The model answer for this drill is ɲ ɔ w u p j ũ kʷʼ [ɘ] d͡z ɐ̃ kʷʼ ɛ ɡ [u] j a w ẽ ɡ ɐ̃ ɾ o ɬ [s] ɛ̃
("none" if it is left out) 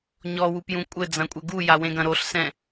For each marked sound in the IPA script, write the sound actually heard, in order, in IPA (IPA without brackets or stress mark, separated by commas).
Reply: ɘ, u, s